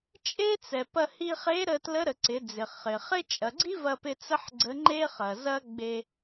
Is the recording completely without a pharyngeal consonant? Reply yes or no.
no